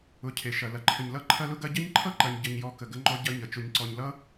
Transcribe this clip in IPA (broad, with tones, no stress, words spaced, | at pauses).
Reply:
ʊ˨ cʰe˨ʃɐ˨ lɐ˨ǃʰə˨ɲlʌ˦˨ ǃʰɐ˦lʊ˦ɡɐ˦ ɟɐ˦ɲǃʰʌ˦ǃɐ˨ɲ ɟə˨ɲjɔ˨ kə˨ɡə˦ŋ͡ǃɔ˦ ɟɐ˦ɲə˨ t͡ʃʊ˨ɲǀɔ˨ɲlʌ˦